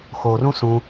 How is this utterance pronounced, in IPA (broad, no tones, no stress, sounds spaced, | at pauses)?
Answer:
x o r ũ s ũ